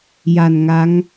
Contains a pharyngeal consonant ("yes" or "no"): no